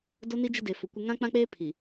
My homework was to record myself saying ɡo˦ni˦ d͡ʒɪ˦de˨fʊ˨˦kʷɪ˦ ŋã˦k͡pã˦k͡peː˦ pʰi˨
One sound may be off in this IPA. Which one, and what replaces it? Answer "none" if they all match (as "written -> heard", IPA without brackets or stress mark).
ɡ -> d